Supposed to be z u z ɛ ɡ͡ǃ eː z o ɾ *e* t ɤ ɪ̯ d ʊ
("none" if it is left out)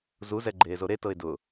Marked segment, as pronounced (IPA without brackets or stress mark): e